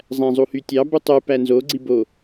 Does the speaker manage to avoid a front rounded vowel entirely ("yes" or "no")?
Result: no